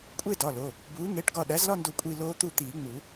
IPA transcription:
kʷʼ e˥˨ d ɒ˩˧˩ l o˩˧˩ | b uː˩˥ ŋ e˩˧˩ ʈ ɡ ɒ˧˩ ɗ æ˩˥ z l ɒ˥˨ n d o˧˩ kʷʼ i˥˨ l oː˦˥ t̪ u˥˨ t̪ iː˨˩˦ ŋ͡m u˨˩˦

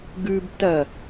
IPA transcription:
ɡ ʉ b t ɐ

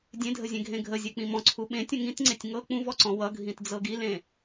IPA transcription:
dʲ ẽ dʱ ə zʲ ẽ ɡʱ ẽ ɡʱ ə zʲ e k͡p ĩ m ɔ̃ ǀʰ u ɓ ẽ tʲ ə̃ ŋ ĩ t ŋ͡ǀ e tʲ ŋ ɤ k͡p ũ v ɔ ǀ ɔ̃ w ʌ ɡʱ ĩ t d͡z ɤ ɡ i l ẽ

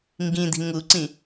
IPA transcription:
ŋ ɡ ĩ d̪ i̤ ŋ u ǀ ĩ

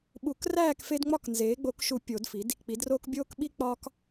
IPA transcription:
ɓ u˨˩˦ k r æː˥˨ k f e˦ d ŋ͡m ɒ˥˨ k n z eː˩˥ ɡ͡b o˨˩˦ k ʃ u˨˩˦ pʲ o˨˩˦ d f i˩˥ d | k͡p i˩˥ d r oː˦ k bʲ oː˦ k ɓ i˦ k͡p ɒː˦ k

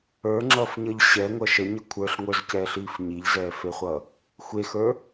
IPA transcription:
ə˞ ŋ͡ǁ ʌː f ɲ ʌ ʎ ɕ ɛ ŋʷ ʌ ʃ ə ɲ ʌ kʷʰ ə˞ ɬ ŋʷ ə˞ z c ɛː ɬ iː f ɲ i ʎ z ɛː f e χʷ ʌː | xʷ e x ə˞

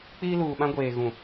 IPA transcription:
k͡p iː˦ l uː˨ ɓ ã˦ ɡʷ eː˨ ɣ ũ˨

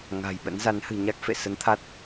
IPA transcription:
ŋ a̤˨˩ j ɓ ə̰˧˥ n z a˨˦ n h ɨ̤˨˩ ɲ a˦˥ k̚ f ḛ˧˨ s ə˨˦ n t̪ʰ a˦˥ t̚

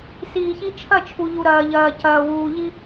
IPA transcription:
s iː˨ ç i˦ t͡ʃʰ ɐ˦˨ t͡ʃʰ u˨ ʎ u˨ ɾ ɐː˨ ʎ ɐː˨ c ɐː˨ w uː˨ ʎ i˦

